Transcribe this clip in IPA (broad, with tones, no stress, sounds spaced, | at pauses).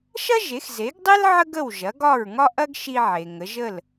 ʃ ɐ˥ ʒ e˩˥ x z e˩˥ ɡ dˤ e˥ l ʕ ə˥ ɡ ə˥˩ w ʒ ɐ˩˥ ɡ ɒ˥˩ ɹ ŋ ɒ˥ ʔ ɐ˥ ɡ ʃ i˧ ʕ e˩ ŋ ə˩˥ ʒ ə˥˩ l